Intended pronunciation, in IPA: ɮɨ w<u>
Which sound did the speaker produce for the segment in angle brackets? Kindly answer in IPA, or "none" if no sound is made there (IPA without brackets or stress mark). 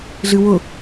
ʊ